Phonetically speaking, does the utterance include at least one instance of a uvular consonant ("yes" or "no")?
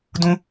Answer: no